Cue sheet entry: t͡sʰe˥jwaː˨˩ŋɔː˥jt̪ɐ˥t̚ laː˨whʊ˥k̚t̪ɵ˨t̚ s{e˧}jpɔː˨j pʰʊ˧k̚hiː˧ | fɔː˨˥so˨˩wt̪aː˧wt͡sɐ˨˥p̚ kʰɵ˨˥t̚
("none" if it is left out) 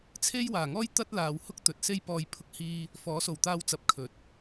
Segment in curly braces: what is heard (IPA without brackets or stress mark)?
e˧